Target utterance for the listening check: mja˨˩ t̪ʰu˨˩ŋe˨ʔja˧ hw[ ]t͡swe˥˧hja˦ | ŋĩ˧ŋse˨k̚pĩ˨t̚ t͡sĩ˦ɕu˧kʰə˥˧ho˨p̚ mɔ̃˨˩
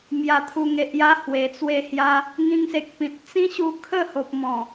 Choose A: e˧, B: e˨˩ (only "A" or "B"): B